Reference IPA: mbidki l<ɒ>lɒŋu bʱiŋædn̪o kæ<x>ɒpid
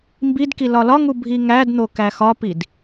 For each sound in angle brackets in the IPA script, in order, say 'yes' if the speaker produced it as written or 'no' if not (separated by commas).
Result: yes, yes